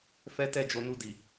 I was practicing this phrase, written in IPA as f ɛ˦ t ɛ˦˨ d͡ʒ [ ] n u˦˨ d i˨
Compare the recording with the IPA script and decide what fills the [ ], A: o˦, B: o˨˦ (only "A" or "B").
B